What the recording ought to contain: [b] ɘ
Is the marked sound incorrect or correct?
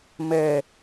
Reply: incorrect